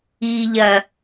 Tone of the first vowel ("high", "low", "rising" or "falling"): low